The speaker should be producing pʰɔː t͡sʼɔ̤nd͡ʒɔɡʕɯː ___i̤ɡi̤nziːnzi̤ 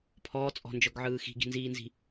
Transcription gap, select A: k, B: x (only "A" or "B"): B